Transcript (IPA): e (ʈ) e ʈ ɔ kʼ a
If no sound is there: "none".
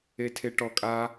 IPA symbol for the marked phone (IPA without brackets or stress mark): tʰ